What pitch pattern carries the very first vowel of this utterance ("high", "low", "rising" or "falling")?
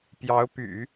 rising